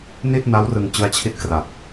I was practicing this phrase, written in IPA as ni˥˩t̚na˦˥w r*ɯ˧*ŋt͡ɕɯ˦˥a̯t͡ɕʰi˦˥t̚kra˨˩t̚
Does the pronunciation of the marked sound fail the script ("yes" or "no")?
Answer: no